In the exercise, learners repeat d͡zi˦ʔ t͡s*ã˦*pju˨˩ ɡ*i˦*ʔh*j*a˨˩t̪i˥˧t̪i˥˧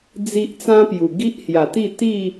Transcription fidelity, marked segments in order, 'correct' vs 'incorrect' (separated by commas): correct, correct, correct